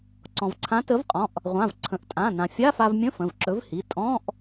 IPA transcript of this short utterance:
ǀɔ̃˩vǀʰã˨˥ tə˨˥vqʼɔ̃˩˧˩ʔ | ʁʷã˩˧˩vǀʰə̃˩˧˩ʔtʼã˩˧˩ nã˩fʲa˧˥˧fa˧vmʲə̃˧˥˧ fə̃˩˧˩vǁɵ˨˥vhi˩˧˩ tʼɔ̃˧˥˧ʔ

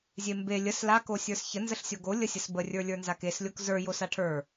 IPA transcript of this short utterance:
zʲembe lʲəs la kosʲə˞sçə nzəɬsʲoɡo lʲəsʲəsbə rʲə˞lʲə˞nzakes lʲokzə˞ josaʈʰə˞

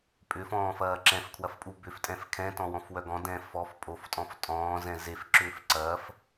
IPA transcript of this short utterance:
pʼʏfɔ̃ːfɐː ǁɛ̃fkʰwɐfpʼu bʏftʼɛ̃f kʰɛ̃tɔ̃wɔ̃fwœ ɡɔ̃dɛ̃ fɔf pʼoftʼɔ̃f tʼɔ̃ːzɛ̃ zefǁʏːf ǀɐːf

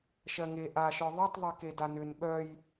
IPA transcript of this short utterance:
ʃɜŋe ʔaʃə˞ ðˤetˤðˤe kedanʏn ɓœj

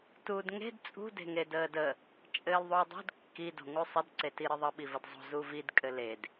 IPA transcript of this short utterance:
tuːdŋe̤d t͡sʼṳ de̤ŋedəːdə | t͡ʃʼɘːlðˤuːdˤo̤d kːi do̤ŋusˤəd ǀetiɾɘðˤə ɓivədzˤo̤ zuvid kʼɘled

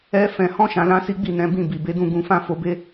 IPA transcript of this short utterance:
ɛ˦ fɛ̃˧hɔ̃˦ ʃã˧lã˦si˦ ɡ͡bi˦˨nɛ̃˨˦bĩ˦˨ bi˨be˨˦dũ˦˨ ɡũ˧fã˦ fo˧be˦

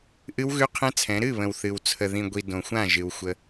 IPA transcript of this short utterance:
ʔɨ˦wɣʉ˦qʰɛ̃˦t͡sʰɛ̃˨˦ ɾɨ˦˨βə̃˨w θɨ˨w t͡sʰə˨ðĩ˨ɡʷi˨ dõ˨xʷã˦˨ ʒɨ˨wxʷə˦

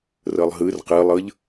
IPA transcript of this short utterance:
rɤlˠɦɯr qɯlˠɤʎ

